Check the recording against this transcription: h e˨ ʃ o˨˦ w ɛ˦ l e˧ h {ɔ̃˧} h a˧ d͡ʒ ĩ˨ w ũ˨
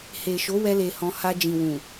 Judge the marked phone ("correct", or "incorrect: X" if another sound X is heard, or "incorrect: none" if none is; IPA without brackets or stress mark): correct